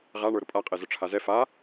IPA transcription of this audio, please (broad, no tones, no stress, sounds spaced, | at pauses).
ʁ a ɳ ə˞ ɾ ʊ pʼ a qʼ ɛ z ʊ ʈ͡ʂʰ a z ɛ f a